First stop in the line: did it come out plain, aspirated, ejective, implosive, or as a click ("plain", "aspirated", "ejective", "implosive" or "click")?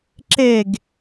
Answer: click